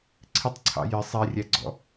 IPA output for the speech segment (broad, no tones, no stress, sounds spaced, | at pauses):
ǀʰ ɪ tˤ ǀʰ ɑ̰ j ɪ sˤ ɛ rʲ æ ɡ͡ǀ ɔ̰